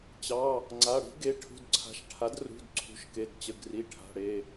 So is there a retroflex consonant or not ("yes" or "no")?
yes